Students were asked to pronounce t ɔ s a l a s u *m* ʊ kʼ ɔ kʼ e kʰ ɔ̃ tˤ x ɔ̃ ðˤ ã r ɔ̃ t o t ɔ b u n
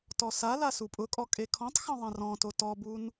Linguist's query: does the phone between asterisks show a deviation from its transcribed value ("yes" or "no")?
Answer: yes